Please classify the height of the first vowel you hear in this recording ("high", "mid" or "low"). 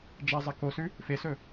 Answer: low